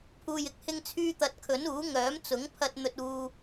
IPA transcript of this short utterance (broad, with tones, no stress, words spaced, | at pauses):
pʰuː˨jɪ˨k̚ hɪ˧ŋt͡sʰyː˧t̪ɐ˨˥t̚ kʰɵ˨˥nuː˨˥ ŋœː˨˥mt͡sʊ˨˥ŋpʰɐ˧t̚ n̪ɵ˧t̚uː˧